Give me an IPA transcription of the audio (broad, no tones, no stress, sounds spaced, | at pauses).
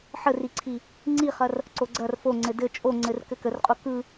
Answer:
ħ ə r i ǀʰ i | ŋ͡ǀ i χ ɐ r | ǀ o ɡ͡ǀ ɐ r f o ŋ͡ǀ ɘ d ɘ t͡ʃʼ o ŋ͡ǀ ɘ r k ɘ k ə r qʼ o k ɯ